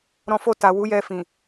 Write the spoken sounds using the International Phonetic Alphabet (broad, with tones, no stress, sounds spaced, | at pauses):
ɾ ɔ̃˧ f o˧ t a˨ w u˨˦ j ɛ˧ f ĩ˨